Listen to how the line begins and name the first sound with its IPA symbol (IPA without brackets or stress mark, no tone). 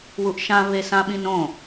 w